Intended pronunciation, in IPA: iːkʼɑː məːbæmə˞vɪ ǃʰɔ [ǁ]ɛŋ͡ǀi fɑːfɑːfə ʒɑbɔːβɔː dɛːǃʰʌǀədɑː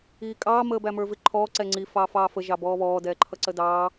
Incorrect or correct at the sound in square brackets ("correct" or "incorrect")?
incorrect